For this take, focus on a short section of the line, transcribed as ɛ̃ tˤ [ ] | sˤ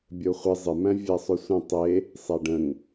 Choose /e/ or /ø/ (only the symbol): e